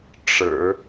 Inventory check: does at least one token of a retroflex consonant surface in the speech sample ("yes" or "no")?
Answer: yes